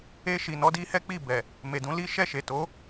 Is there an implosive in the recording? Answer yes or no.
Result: no